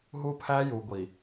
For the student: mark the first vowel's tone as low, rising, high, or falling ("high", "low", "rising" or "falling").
high